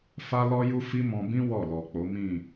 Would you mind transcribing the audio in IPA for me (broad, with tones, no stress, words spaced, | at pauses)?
fa˦lɔ˦ju˦ fi˦mɔ̃˧bĩ˦ wɔ˦˨lɔ˨k͡po˨˦ mĩ˦˨